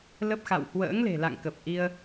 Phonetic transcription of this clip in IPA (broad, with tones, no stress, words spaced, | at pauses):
lə˦˥p̚xa̰˧˨w hwə̰ː˧˥ŋle̤˨˩la̰˧˨ŋkə˨˩p̚ ʔi˧ə̯